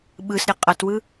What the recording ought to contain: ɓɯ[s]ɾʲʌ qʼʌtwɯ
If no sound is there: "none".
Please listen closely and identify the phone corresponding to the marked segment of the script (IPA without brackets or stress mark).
s